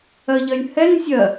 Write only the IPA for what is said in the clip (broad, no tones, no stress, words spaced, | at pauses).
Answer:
ɜʎɜlʲhɛn zʲɜ